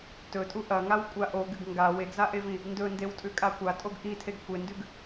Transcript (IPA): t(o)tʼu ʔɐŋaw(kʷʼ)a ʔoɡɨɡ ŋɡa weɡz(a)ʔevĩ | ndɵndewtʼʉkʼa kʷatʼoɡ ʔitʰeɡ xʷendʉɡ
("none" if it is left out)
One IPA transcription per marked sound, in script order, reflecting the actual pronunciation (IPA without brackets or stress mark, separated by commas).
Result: ɵ, kʷʼ, a